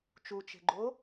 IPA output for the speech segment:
t͡ʃut͡ʃe̤ɡ͡ǃo

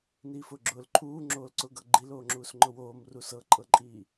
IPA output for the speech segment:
niːfʊːɡ͡ǁʊːl ǃʰuː ŋ͡ǁoːlǀʊɡɤ ɡ͡ǃiloːŋ͡ǁuːs ŋ͡ǃʊwoːmru sɤǃʼɤǃʼiː

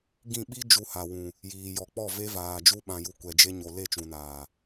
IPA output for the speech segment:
ɡĩ˦˨ ɓi˦ d͡ʒu˧ha˨wũ˨ | jiː˨jɔ˨k͡pɔ˦˨ ve˦vaː˨ d͡ʒu˧ɓã˨ju˨ kʷɛ˨d͡ʒe˧ ɲo˨ le˦˨t͡ʃũ˨naː˨

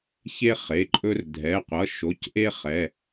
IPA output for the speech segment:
çe˦ χe˩˧˩ǃʼɵ˦r dʱɛ˩˧˩qʷʌ˩˧˩ʃo˩˧˩cʔe˦ χɛ˩˧˩

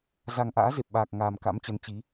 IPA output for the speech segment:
za˨˩ŋʔa̰ː˧˥ze˨˩p̚ɓaː˨˩k̚ ŋaː˨˩mka̰˧˥mt͡ɕə˨˦nt͡ɕi˨˦

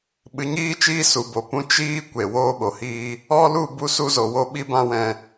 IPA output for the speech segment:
ɓɨ˨˦ɲiː˦t͡ʃiː˦ su˨ bo˨pũ˦ t͡ʃiː˦ kʷe˨ woː˦ɓo˨hiː˦ | ɔ˦lu˦˨ bu˦su˦zo˨ wo˦ɓi˦bã˦wɛ̃˧

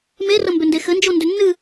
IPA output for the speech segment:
merəmbʏ ndexɘnd͡ʒondʏ nːɨ

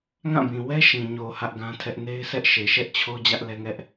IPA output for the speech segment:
ŋã˦˨bĩ˨ wɛ˦ ʃĩ˨ ɲo˨ hä˦ʔɡã˦tʰɛ˦ʔ ne˦ɪ̯sɛ˦ʔʃe˨ ʃɛ˦ʔt͡ɕʰo˦ d͡ʑä˦ʔlɛ˦ŋɛ˦ʔ

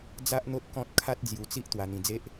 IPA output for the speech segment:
d͡za˦ʔn̪o˦t̚kɔ̃˦t̚ kʰa˦t̚d͡zju˧t͡si˦ʔ t̪wa˧n̪ĩ˧d͡ze˦ʔ

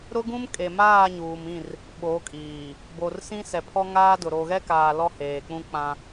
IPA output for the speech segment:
ɾʊ˦ɡũ˦mkʼe˨maː˦˨ ɲuː˨mĩ˦˨r | ɓo˨˦kʼiː˨ | bo˨rsĩ˦sɛ˨pʰɔ˦ ŋaː˦dʊ˨ ɾo˨ɣɛ˦kaː˨ lɔ˦heː˨k͡pũ˦k͡pã˦

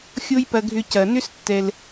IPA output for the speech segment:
xʲo˦jpɐ˨ ɡʱʏ˨ cɐ˩nʏ˥stːɛ˨l

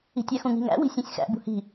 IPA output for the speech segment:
i̤tʲæxũŋi̤ ŋæ̰ wi̤sʲẽsʲxæ̰ bṳhi̤

